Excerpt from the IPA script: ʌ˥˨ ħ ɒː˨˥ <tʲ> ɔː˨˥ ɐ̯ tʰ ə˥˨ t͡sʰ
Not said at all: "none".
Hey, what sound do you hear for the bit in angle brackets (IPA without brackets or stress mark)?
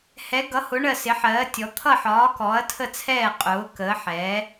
k